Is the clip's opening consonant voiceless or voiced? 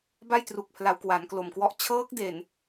voiced